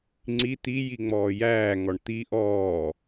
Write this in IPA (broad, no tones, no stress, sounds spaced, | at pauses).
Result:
ŋ͡ǀ i t̪ i j i ŋ͡m ɔː j æː ŋ ɔ ɳ t̪ i ʔ ɔː